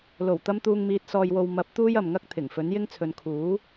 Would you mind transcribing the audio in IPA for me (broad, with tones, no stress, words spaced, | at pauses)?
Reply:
lo˨˩wt̪ɐ˧m t̪uː˨ŋmiː˨t̚ sɔː˨jwo˨w mɐ˨˥p̚ t̪uː˥jɐ˨mŋɐ˥k̚ t̪ʰɪ˨˩ŋfɵ˨˥n jɪ˥ŋt͡sʰɵ˨˧n kʰuː˨˥